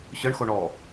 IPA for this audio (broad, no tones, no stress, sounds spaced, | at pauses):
ɕ ɤ ɳ x o ɳ ɔ